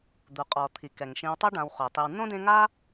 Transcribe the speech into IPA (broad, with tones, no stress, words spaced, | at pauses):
d̪u˩qʼɔ˩t̪ʰi˩ kɛ˩ŋ ʃĩ˨wtˤɤ˦ ɖã˨w χo˩tˤi˨wnõ˥dẽ˦ ŋa˦